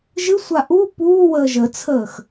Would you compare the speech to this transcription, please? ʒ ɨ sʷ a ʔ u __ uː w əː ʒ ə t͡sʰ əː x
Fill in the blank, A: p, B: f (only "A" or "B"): A